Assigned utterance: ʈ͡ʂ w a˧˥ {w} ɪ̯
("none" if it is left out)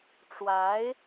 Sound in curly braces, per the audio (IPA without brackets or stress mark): none